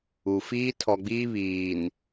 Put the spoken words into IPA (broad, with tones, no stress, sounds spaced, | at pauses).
u˨ f iː˦ tʰ ɔ˨ ɡ͡b iː˦ β iː˨ n